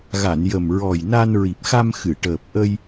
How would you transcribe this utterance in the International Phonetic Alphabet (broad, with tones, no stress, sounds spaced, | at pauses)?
ɣ a˨˩˨ n j ə˨˩ m ɹ ɔ˨˩ j n a˧ n ɹ i˨˩ p̚ x a˧ m x ɨ˨˩˨ ʈ əː˨˩ p̚ ʔ ə˧ j